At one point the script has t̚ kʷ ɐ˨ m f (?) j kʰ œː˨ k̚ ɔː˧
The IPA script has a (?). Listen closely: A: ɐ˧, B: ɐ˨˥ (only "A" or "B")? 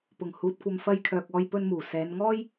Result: A